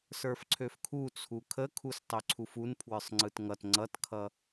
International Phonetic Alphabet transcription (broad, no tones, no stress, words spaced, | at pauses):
sə˞fǀʰøfkʰut͡sʰu kʰəkʰustˤø ǀʰufun pʰwə˞sˤŋ͡ǀɯtŋʌt ŋ͡ǀʌtkʰʌ